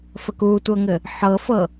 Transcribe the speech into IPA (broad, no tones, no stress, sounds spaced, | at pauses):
f ə k u tʷ ɤ ŋ ɘ | ħ ɤ f ɤ